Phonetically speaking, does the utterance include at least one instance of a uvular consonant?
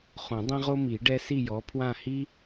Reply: yes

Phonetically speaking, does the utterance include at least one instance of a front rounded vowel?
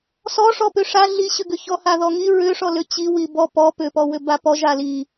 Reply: yes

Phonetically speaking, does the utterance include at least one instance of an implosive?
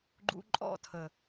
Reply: no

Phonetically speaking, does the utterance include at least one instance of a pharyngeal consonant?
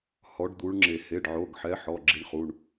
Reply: yes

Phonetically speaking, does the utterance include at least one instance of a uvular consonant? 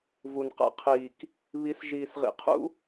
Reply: yes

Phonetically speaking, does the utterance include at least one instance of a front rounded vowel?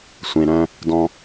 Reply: yes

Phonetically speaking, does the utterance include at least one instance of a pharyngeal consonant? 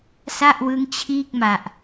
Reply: no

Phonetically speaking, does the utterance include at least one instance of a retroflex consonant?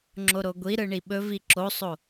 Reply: yes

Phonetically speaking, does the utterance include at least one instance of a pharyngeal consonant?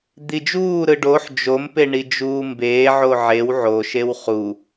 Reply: yes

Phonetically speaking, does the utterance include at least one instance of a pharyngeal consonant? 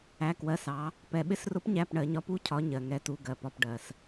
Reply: no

